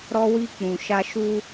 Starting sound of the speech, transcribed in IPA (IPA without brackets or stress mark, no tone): ɾ